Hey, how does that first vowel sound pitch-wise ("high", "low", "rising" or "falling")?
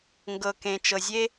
low